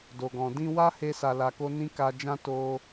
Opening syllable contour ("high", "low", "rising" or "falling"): low